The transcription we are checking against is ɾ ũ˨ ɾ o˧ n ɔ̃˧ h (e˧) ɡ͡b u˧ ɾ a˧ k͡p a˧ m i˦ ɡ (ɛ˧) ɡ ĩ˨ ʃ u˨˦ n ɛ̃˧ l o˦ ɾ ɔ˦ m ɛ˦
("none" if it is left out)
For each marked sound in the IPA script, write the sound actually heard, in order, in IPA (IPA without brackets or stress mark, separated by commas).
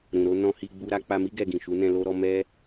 i˧, ɛ˧